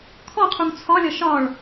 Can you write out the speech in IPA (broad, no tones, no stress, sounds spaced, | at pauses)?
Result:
kʰ ɔ qʰ u ŋ t͡sʰ ɒ lʲ ɒ ʃ ɒ ɭ